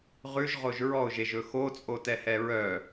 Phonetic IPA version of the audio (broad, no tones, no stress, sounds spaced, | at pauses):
ʁ ʉ ʒ ʁ o ʒ ɹ ɔ ʊ̯ ʒ e ʒ ɵ x o t͡sʼ o t ɛ h ɛ ɹ œ